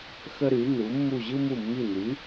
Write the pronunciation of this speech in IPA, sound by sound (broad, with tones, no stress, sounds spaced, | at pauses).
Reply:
x ə˥ ɾ y˨˥ n u˨˥ mː u˦˨ ʑ ɯ˥ m u˦˨ mː i˦˨ n y˨˥